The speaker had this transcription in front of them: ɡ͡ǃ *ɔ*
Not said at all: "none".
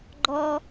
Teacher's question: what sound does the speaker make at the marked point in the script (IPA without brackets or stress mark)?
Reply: ɔ